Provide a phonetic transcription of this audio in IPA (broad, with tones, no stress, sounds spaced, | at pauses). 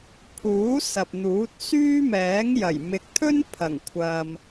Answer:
pʰ uː˨˥ s ɐ˨ p̚ n̪ uː˨˥ t̚ s yː˥ m ɛː˨˥ ŋ j ɐ˨˩ j m ɪ˨ k̚ t̪ʰ ɵ˥ n pʰ ɐ˨˩ ŋ kʷʰ ɐ˨ m